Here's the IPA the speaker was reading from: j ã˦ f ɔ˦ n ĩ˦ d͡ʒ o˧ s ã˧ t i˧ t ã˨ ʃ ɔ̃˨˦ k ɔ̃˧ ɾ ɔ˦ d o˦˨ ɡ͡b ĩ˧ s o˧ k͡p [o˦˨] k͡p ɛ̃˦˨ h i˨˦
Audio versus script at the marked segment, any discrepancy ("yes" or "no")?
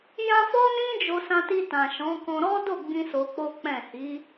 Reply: yes